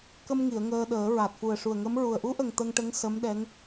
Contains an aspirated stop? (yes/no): no